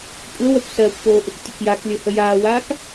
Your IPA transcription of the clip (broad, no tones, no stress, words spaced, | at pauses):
kʷʼəːwɜkʷ sɜːkʷpoː ʔuktʲəkjaklʲo həjaːwaːk